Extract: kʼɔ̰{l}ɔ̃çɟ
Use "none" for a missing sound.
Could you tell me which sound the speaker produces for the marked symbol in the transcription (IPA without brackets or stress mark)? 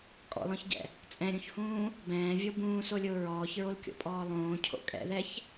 l